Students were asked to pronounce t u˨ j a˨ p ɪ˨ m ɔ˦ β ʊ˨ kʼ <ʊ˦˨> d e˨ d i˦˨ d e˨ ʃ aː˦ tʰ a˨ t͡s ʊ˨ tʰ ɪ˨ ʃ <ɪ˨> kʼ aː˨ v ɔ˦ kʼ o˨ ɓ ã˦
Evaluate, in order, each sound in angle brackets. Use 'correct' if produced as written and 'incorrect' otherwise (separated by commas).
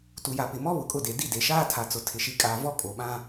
correct, incorrect